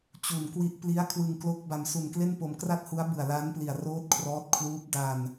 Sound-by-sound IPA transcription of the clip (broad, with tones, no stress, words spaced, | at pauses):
t͡ɕu˨˩nkwi˦˥ʔ pli˦˥a̯kʰwɯ˧ŋklo˦˥k̚ ba˧msu˧nkle˥˩npo˧m kra˥˩t̚hu˦˥a̯ bɯ˨˩a̯ la˦˥npli˨˩a̯ roː˦˥t̚ kʰrɔː˦˥t̚kʰluː˦˥p̚ da˧n